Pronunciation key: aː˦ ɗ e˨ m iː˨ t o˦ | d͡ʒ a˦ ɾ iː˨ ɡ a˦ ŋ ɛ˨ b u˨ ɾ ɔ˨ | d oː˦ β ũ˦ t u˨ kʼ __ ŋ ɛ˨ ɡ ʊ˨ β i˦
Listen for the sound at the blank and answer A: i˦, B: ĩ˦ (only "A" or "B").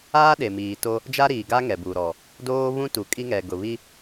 A